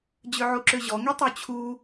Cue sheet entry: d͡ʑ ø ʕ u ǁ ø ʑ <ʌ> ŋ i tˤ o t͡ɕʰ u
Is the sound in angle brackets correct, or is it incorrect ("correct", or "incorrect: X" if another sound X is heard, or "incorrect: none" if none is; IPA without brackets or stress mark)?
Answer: incorrect: ɔ